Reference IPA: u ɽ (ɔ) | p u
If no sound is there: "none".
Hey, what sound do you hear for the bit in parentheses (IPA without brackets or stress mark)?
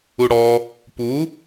ɔ